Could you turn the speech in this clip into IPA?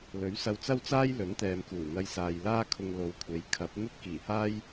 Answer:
lɵ˨˥ɥsɐ˧wt͡sɐ˥wt͡saː˥j lɵ˨˥nt̪ɛː˨mkuː˨˩ n̪ɐ˧jsaː˨jlaː˥kʰʊ˧ŋ lo˨wkʷʰe˨˥j kʰɐ˨˥p̚ n̪ɵ˥t̚kiː˨˩haː˥j

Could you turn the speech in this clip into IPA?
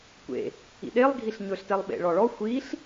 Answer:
kʷḛ | ḭɗelˠ ɡʱiɬɲɵɬtɛlˠ ɓḛɭɔɭɔ xʷiɬ

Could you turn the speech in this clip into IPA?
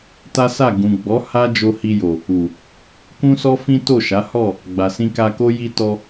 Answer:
ta˦sa˦˨ ɡũ˨ɡ͡bɔ˨˦ ha˦d͡ʒo˧ hi˧jo˨ | u˨ | kũ˦sɔ˦ fĩ˦to˦˨ʃa˨˦ hɔ˦˨ | ɡ͡ba˨sĩ˧ka˧ko˦ ji˧tɔ˧

